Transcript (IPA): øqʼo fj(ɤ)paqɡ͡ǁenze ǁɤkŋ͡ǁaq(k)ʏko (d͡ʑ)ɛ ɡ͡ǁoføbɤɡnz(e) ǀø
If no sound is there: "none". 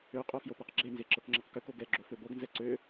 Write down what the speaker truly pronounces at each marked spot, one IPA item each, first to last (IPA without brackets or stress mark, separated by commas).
o, k, ɡ, ɛ